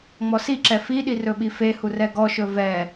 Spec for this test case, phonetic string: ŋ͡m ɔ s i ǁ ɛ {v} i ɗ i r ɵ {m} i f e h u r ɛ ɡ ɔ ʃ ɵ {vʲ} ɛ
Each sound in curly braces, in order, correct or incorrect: incorrect: f, incorrect: ɓ, incorrect: v

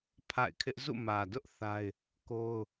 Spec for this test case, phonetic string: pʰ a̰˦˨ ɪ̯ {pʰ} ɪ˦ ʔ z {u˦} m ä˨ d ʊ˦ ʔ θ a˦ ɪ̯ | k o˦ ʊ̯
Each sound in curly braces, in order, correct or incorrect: incorrect: kʰ, incorrect: ṵ˦˨

